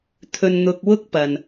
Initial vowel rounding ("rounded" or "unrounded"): rounded